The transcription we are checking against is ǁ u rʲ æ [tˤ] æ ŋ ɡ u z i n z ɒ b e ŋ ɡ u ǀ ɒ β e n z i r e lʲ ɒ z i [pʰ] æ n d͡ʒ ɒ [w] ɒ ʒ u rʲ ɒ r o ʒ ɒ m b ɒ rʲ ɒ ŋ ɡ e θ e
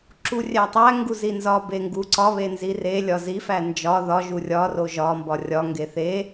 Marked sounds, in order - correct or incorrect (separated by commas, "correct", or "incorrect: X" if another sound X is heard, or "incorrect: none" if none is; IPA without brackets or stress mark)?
correct, incorrect: f, incorrect: ð